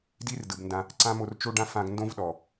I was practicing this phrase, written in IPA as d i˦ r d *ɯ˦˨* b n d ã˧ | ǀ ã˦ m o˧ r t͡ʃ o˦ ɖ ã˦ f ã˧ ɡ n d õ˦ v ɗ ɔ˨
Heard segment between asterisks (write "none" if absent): ɯ˨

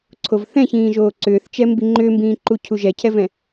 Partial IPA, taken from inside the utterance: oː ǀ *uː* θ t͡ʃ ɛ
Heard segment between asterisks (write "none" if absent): ʏː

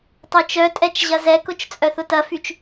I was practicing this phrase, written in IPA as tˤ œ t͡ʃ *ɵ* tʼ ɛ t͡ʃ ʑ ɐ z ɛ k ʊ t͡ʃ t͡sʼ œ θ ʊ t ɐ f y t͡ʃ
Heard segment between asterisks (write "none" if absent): œ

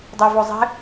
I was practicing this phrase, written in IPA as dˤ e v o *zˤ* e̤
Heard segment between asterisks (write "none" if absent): zˤ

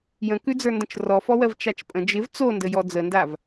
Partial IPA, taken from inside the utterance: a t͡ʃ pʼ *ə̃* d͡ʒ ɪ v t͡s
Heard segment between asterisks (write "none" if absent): ə̃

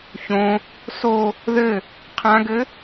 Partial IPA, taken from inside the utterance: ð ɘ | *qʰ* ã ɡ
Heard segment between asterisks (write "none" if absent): qʰ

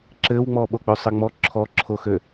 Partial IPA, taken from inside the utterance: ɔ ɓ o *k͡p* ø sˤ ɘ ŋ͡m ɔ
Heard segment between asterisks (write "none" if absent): k͡p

